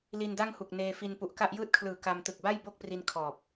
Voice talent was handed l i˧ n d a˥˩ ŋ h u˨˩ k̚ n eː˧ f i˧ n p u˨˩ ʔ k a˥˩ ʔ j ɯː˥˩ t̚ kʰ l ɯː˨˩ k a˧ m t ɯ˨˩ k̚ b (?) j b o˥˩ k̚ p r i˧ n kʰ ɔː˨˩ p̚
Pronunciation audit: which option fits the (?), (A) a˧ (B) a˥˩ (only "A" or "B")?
B